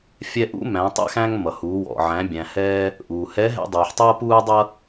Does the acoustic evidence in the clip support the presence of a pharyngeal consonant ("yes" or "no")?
yes